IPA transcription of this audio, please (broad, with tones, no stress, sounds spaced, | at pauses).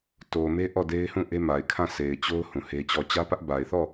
t o˨ m e˦ ʔ ɔ˦˨ d e˦ ɪ̯ h ũ˦˨ ʔ e˦ m a˨ ɪ̯ kʰ ã˦˨ s e˨ ɪ̯ t͡ɕ o˦ ʊ̯ h ũ˨ h e˦ t͡ɕ ɔ˦˨ t͡ɕ ä˦ p ä˦ ʔ b a˨ ɪ̯ θ ɔ˦˨